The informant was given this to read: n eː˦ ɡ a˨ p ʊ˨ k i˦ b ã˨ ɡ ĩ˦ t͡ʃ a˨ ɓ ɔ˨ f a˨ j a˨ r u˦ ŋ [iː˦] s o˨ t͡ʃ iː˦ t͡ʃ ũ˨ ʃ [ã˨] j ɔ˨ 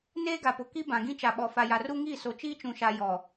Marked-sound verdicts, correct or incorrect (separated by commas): incorrect, incorrect